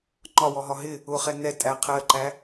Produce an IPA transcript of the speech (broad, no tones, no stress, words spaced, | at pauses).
ŋ͡ǃɒwɔɦɒ ɦɪ | ʊχɛ nɛ tʼæ qʰɜǃæ